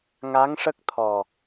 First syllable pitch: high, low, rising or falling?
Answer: rising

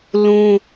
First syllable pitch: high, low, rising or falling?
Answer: high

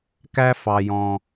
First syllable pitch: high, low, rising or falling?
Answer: high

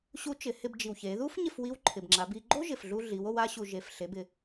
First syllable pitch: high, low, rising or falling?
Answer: rising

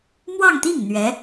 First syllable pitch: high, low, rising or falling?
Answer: falling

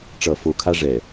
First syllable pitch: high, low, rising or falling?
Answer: low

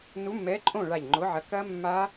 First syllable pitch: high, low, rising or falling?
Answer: rising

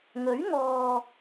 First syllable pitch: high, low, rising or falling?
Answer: rising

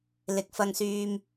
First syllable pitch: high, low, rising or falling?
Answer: low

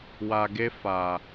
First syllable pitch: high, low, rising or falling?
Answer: low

